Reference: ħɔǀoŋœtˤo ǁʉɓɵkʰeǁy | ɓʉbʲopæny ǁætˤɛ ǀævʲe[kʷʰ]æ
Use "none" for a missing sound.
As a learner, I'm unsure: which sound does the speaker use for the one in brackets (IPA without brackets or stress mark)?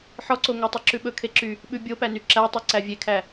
kʰ